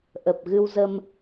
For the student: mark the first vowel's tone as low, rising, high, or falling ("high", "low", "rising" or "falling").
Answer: low